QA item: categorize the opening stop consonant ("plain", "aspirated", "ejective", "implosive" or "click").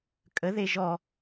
ejective